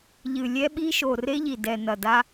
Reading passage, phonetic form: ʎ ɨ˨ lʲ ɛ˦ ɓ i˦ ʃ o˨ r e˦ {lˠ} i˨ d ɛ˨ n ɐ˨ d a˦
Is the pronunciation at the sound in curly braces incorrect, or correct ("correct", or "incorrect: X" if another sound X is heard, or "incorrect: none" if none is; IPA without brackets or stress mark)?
incorrect: ʎ